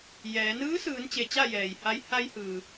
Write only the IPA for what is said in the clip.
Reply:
j ɛː˩˧ n ɯː˧˥ s ɯː˩˧ n t͡ɕ e˩ t͡ɕ a˥˨ j ɛː˩ j h a˧˥ j h a˧ j h ɯː˩

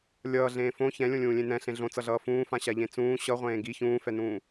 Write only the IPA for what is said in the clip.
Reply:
lʲ ʌː ɮ ẽː f õ ç ɛ̃ lʲ õ lʲ ũː lʲ ẽ n ɛ̃ ɬ ẽ ɮ õ t͡s ʌ ɮ ʌː f ũː f ã ɕ a ʎ ẽ t͡s ũː ɕ ʌ ʁʷ ẽː ɡ i ç ũː f ɛ n ũː

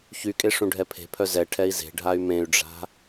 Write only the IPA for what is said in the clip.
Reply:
ç y kʼ e ʂ ũ ɖʱ ɛ pʰ e̤ pʰ œ z ɛ ʈʰ ɛ i̯ z e̤ ɖʱ a y̯ m ẽ y̯ ɖ͡ʐ a̤

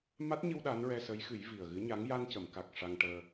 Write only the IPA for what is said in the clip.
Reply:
m a˦˥ t̚ ɲ ɨ˧ w ɗ a˧˥ n ɹ ɛ˧ s ə˧˥ j x ɨ˨˩˦ j v i˨˩ ə̯ ɣ ɨ˧˥ ɲ a˧˥ ŋ j a˧ n c ə˨˩˨ m k a˨˩ k̚ ʂ a˧ ŋ ʈ əː˧

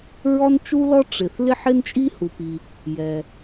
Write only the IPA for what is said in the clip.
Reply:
ɹ ɔ˥ n t͡ʃ u˥ l ɔ˥ ʈ͡ʂ ɪ˩ θ l ɪ˥ ħ ɪ˥ n t͡ʃʼ i˥ h u˩ p i˩ | j ɛ˩

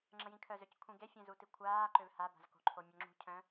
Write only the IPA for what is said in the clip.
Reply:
ŋ͡ǁ ə̃ j ĩ kʰ œ z ø c kʷʰ ĩ ɡ e fʲ ɛ̃ z u t i kʷʰ aː ǃ ø v h a b a̤ z k o̤ ǃʰ o mʲ œ ŋ͡ǁ ṳ cʰ œ̃

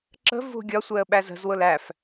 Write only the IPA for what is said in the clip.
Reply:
ǁ ə̤ v ṳ ɡʲ ɒ sʷ ɛ ə̯ ɓ æ z ə̤ z w ʊ l æ f

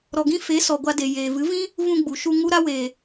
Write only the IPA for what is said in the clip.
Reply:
ɾ ɔ˨ ɡ ĩ˧ f e˨˦ s ɔ˨ ɡʷ a˧ d e˨ j eː˨ v ɨ˨˦ v ĩ˦ | v ũ˧ ɡ͡b u˨ ʃ u˧ ŋ u˦ ɾ a˦ w eː˨

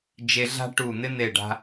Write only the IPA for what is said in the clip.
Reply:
d͡ʒ e˧ ɮ a̤˥ ʈ u˧˩ n̪ ɪ˥ n̪ e˧˩ ɖ a̤˧

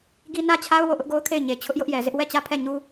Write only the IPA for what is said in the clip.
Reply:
ɡ i˦ n ä˦ t͡ɕʰ a˦ ʊ̯ w o˦˨ ʔ ʊ˦ ʔ ɡ o˦ ʊ̯ kʰ e˦˨ ɪ̯ ɲ e˨ t͡ɕʰ ʊ˦ ʔ j ʊ˦ ʔ j ɛ˨ z ɪ˦ ʔ w ɛ˦˨ t͡ɕ ä˦˨ pʰ ɛ˦˨ ɲ u˦

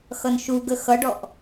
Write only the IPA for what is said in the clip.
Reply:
x ʌ n ʃ u ɡ ə x ʌ ɖ ɔ ʔ

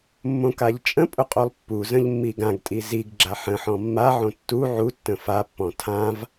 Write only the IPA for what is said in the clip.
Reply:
mː õ k a ʎ t͡ʃʼ ə̃ pʼ ʊ qʼ o lˠ pː u z ə̃ ʎ mː i ɡ ã ɡ tʼ i z i ɡ ɡ͡ǁ a ħ ə̃ ħ ɔ̃ mː a ʕ õ tː u ʕ u tː ə̃ f a pː ɔ̃ tʰ ã v

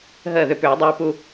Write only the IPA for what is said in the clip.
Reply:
ɦ əː˧˩ ð ʏ˧˩ p ʏː˧˩˧ dˤ uː˧ p u˧

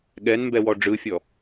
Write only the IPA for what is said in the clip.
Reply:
ɠ ɛ n m b ɛ w ɔ ɖ͡ʐ ɯ fʲ ɔ

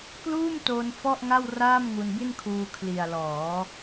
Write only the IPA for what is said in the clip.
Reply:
k l uː˥˩ m t o˧ n f ɔ˥˩ ʔ ŋ a˥˩ w r aː˥˩ m ŋ u˧ n b i˥˩ n kʰ uː˧ kʰ l i˨˩ a̯ l ɔː˩˦

